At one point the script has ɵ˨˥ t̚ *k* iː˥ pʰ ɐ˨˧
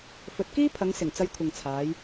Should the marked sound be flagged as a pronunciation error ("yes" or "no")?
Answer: no